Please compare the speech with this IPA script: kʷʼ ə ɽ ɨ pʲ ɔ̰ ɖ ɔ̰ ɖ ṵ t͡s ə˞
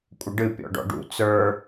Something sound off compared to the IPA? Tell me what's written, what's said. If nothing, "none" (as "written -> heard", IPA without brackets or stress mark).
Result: ɽ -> ɖ